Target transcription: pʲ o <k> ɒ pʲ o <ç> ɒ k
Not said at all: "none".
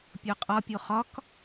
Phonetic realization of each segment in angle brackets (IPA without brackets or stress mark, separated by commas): qʼ, χ